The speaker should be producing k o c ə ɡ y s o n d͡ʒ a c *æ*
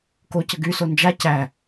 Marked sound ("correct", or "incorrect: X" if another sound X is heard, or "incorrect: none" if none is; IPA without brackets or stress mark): correct